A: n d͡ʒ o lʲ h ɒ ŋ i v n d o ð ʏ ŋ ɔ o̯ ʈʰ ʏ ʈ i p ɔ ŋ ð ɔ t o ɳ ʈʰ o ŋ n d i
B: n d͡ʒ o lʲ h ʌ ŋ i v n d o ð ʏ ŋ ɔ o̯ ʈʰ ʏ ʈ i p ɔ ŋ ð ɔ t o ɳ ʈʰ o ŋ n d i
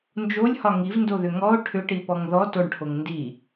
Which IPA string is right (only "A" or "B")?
A